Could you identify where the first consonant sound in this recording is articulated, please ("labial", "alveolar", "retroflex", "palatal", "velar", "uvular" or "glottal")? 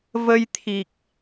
labial